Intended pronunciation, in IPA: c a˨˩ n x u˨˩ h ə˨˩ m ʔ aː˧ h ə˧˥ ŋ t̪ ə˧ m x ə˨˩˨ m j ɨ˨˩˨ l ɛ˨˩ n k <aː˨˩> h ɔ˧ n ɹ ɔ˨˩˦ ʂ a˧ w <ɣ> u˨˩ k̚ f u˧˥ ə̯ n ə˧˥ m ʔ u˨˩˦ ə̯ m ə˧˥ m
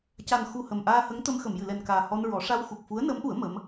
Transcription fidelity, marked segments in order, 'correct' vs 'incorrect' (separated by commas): correct, incorrect